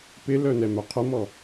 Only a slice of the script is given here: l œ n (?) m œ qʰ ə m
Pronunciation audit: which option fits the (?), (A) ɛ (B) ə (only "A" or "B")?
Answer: A